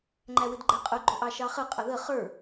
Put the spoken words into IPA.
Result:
ŋ͡ǃ æ w ɪ d ɡ͡ǃ ɛ qʼ ʊ ɡ͡ǃ ʊ ʔ ɑ ʃ ɑ χ ə qʼ ʌ ð ə χ ə˞

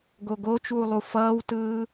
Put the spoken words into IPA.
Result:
ɡ o ɡ o t͡ʃ uː lˠ u f ʌː w t ɯː

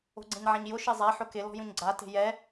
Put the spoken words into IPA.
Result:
o̤ ɡ͡ǀ ẽ ɲ ʕ ã ɲ j ʊ ʃ e zˤ a ħ ʊ k ɪ l ɔ̤ j ũ ɲ ɡ͡ǀ a t e̤ j ɛ

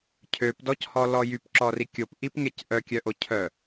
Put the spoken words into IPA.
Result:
cʰ ø p d ɔ c h ɔ l ɔ j y p ǁ ɔ r i kʲ o p ʔ i p ŋ e c ʔ œ kʲ œ ʔ o cʰ œ

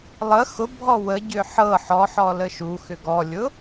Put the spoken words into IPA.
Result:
lˠ ə x ʊ bʱ ɔ w ə ɟ ʏ ħ ɤ ħ ɔ ħ ɔ l ə ʃ u x ʏ ɡ ɔ lʲ ʊ

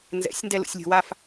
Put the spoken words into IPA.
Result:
n z ɛ̰ sʲ n d ɛ l ṵ sʲ lʲ ṳ w a f

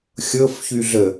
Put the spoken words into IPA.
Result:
xʲ ɤ f ç y ɮ ə

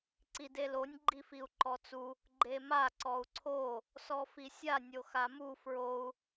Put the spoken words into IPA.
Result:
ǀ i d e l o nʲ ɡ͡ǃ i f i u̯ ǃ ɔ t͡s u | ɡ͡ǃ e m a ǀ ɔ u̯ ǀʰ o | s ɔ f i sʲ a nʲ o x a m u f ɹ o u̯

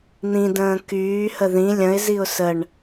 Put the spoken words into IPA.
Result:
n̪ ĩ d ə̃ː k yː h ə ð ĩ lʲ ə̃ ɪ̯ z i ʊ̯ s ə ɳ

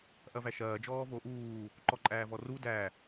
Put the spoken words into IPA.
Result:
ʔ ɐ v æ ʃ ɐː d͡ʒ ɔː v oː ʔ uː | ǃ ɔ ǃʼ æː v ɔ r u d æ

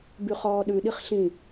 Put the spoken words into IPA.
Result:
b y χ ɔː ɗ ʉ ɗ i χ ɬ ĩ

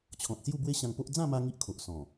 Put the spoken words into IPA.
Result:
t͡ɕʰ ɔ̃˨ t̚ s j u˥˧ b w e˦ ɕ ã˧ ŋ p o˦ ʔ d͡z ã˥˧ m a˧ ŋ i˦ ʔ kʰ o˨ ʔ s ɔ̃˨˩

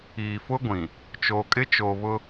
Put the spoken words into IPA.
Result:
iː˨ f ʊ˦ ɡʷ ĩ˨ | t͡ʃ oː˨ kʼ ɪ˦ t͡ʃ oː˨ β ʊ˦

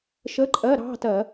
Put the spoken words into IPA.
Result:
ʃ ə˧˥˧ ǃʼ ɜ˧˥˧ ɾ ɑ̤˧˥˧ t ɜ˧˩˧

